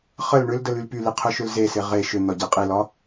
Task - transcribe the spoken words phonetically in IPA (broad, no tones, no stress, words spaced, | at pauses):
χəl ɳʏldəl ylpyli qʰʏʃʏlzese ʁe ʃʏ n̪ɒɟiqʼilɒ